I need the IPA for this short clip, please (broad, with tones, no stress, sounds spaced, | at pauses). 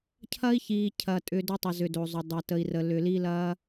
cʰ ɐ˥ i̯ ç iː˧ cʰ ɐ˧ tʼ ʏ˧ d ʏ˥ tˤ ə˧ z ʏ˧ d o˧ zˤ ʏ˧ dˤ ɐ˧ t ə˧ i̯ r ə˧ l ʏ˧ l i˥ l ɐː˥